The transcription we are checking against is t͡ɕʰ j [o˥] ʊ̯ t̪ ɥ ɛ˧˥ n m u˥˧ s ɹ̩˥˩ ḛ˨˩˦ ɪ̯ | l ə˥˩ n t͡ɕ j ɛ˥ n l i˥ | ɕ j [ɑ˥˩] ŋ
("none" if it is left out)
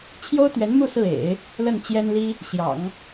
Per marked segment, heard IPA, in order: o˥, ɑ̰˨˩˦

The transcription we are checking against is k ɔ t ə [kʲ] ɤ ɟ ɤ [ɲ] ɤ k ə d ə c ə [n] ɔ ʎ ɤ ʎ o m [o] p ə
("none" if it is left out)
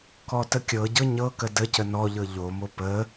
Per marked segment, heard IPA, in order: kʲ, ɲ, n, o

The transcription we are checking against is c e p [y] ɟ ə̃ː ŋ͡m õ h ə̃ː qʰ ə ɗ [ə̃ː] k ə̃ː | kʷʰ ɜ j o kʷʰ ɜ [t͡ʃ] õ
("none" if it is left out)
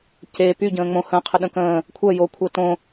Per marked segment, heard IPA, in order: y, ə̃, t

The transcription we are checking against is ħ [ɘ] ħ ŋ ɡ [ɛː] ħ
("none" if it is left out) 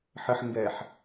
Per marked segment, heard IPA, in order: ɘ, ɛː

